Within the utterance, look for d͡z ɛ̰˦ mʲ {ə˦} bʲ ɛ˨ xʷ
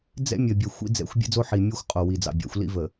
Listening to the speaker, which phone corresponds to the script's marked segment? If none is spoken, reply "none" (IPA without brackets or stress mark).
ə˨